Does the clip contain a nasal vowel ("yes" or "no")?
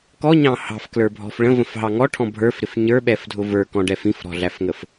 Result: yes